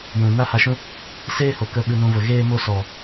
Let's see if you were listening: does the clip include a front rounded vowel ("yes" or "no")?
no